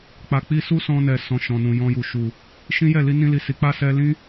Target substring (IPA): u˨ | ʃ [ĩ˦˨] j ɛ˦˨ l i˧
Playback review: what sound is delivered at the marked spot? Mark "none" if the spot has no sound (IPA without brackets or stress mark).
ĩ˦